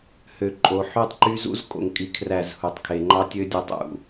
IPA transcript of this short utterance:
hø˨ǃʼo˨ ħy˦tˤǃy˦ zṵ˦zkʼo̰˨ŋkʼi˨ kʰræ˦˨zhu˨tˤkʰe˨ ŋ͡ǃɑ˦tʲø˦dʲo˦˨tˤ ṵ˨

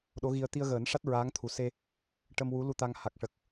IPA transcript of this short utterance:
ɗo˧˥ɣi˧ə̯ t̪i˧ə̯ɣəː˨˩˦nʂa˦˥t̚ ɹaː˧˥ŋt̪ʰu˨˩se˧ | ʈə˧mwu˧˥lu˧ t̪a˧ŋ ha˨˩k̚ʂə˨˩k̚

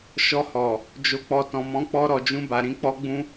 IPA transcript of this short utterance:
ʃɔ˧hɔ˨ | d͡ʒo˨k͡pɔ˨tɔ̃˨ mɔ̃˨˦k͡pɔ˧ɾɔ˨d͡ʒũ˧ ba˨ɾĩ˨˦ k͡pɔ˦ ɡ͡bũ˦

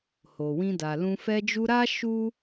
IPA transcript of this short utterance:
ho˨wĩ˧da˨lũ˧ fɛ˧d͡ʒu˧ɾa˦ ʃu˦

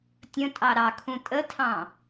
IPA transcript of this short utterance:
tʲə̃tʼɑ ɾɑkʰũ tʼətʰɑ̃

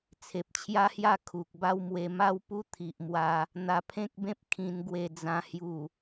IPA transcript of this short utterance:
t͡sʰe˨p̚t͡ɕʰja˦hja˥˧ kʰu˨k̚ba˦wmwe˧ ma˦wpu˦ t̪ʰi˨ʔmwa˧ | n̪a˧pʰẽ˦k̚bẽ˦p̚ kʰĩ˧nɡwe˧d͡zã˧ hju˨˩

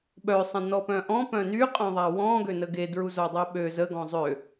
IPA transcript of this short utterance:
ɓœsˤə̃ nɔpœ̃ʔɔ̃ pœ̃nyqʼœ̃ðˤa wɔ̃ ɡønəɡedɹu zodˤɛɓø zə ɡɔ̃zˤø

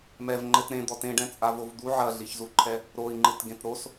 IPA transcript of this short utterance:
mɛvŋ͡ǃɘt ɾẽd̪ɔ tẽɖɛ̃t͡sʼavov d̪u ʕɐɮiçzuǃʰɛ | ɾoi̯ŋ͡ǃɨtɡẽt ɾos

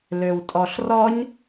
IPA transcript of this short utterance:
løwtʼɔɬrɔɲ

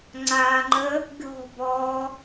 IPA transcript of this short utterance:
ŋ͡ǀaːŋ͡ǃə | ɡʲɔ̤bɔː

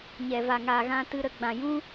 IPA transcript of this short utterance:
ɲɛ˨ va˨ŋaː˨ɣã˧ tɨ˦ ɾə˧ɡ͡bã˨ jũ˦

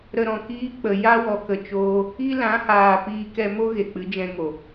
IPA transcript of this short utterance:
ɾə˧ɾɔ̃˨kiː˦ k͡pə˨ja˦ wɔ˧kə˧t͡ʃoː˦ | i˦lã˨˦haː˨ piː˧kɛ˧mo˦ ɣe˨k͡pɨ˨˦d͡ʒɛ̃˧ŋo˨

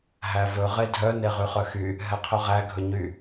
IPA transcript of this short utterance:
ɦævɵ ʁedʱœ neʁyχœxy | ɦɛqʰɵʁæ ɡʱɵɲy

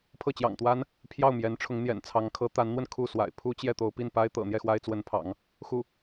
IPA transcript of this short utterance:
pʰɤ˥˩t͡ɕjɑ̰˨˩ŋt̪wa˥n | pʰjɑ˥˩ʊ̯mjɛ˧˥n ʈ͡ʂʰʊ˧˥ŋn̪jɛ̰˨˩nt͡sʰɑ˧˥ŋ kʰɤ˧˥t̪a˧˥nn̪wə˧n kʰu˥˩ swa̰˨˩ɪ̯ pʰu˥t͡ɕjɛ˥˩ t̪o˥ʊ̯ pi˥˩npa˥ɪ̯t̪ɤ̰˨˩ n̪jɛ˥˩xwa˥ɪ̯ t͡swə˧˥npʰɑ̰˨˩˦ŋ | xu˥˩

